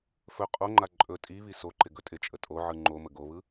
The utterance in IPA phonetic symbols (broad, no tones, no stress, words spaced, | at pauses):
fɵ qʼoŋ͡ǃa ǃʼɵ tʼiβi soǃɪ ɡɵtʼɪt͡ʃʼə tʼoʕɯ ŋ͡ǃomə ɡoβɯ